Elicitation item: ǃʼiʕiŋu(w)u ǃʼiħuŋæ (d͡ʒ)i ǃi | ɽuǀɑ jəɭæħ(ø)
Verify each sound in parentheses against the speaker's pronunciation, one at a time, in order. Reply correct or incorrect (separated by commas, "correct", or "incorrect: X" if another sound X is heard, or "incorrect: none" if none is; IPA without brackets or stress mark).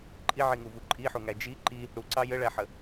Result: incorrect: v, correct, incorrect: ə